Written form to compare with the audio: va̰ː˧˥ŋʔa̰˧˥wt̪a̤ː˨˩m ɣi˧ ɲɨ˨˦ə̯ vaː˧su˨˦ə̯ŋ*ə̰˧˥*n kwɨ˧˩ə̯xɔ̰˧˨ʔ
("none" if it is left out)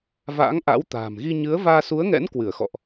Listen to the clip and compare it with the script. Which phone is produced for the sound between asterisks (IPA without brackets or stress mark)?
ɛ̰˧˥